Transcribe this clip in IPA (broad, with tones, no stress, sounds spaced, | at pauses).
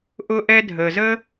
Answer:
ʔ ʊ˥ ʔ ɛ˥ dʱ ə˩ z ə˥